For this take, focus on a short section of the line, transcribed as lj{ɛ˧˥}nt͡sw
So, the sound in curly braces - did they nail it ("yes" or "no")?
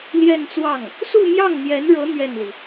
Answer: no